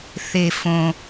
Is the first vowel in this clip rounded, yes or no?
no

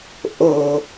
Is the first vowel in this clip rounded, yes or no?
yes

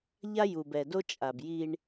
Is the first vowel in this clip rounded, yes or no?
no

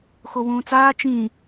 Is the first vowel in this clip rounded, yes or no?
yes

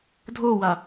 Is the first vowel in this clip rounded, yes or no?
yes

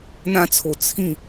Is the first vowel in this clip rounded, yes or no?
no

